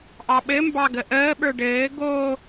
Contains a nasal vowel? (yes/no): no